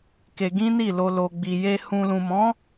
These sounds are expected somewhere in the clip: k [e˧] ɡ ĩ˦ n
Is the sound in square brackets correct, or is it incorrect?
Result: correct